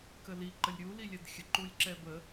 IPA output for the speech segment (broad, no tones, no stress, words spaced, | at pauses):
kəli ǃəlʲɾʲu lilʲɛdxʲə ǃulʲǁɛbə